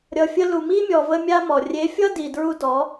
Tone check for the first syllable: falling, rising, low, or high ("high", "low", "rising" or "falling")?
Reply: low